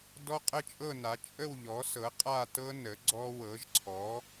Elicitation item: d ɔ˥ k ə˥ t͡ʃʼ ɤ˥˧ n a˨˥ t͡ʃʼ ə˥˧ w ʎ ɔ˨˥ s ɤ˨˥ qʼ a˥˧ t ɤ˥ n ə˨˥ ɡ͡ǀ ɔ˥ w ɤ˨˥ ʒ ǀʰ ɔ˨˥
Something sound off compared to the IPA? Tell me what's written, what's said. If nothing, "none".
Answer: k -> qʼ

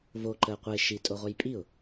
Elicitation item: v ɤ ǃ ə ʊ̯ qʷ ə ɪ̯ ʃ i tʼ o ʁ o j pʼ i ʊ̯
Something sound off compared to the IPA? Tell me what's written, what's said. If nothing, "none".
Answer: ɤ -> o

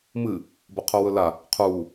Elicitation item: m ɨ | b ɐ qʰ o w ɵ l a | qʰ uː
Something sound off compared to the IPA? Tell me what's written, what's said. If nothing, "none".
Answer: none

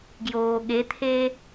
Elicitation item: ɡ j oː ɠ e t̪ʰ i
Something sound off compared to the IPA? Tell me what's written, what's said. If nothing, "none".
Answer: i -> e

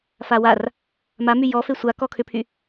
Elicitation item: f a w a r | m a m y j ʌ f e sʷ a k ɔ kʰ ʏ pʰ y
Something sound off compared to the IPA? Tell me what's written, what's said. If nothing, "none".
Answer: ʌ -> ɔ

